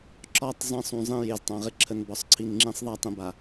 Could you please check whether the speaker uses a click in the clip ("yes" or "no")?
yes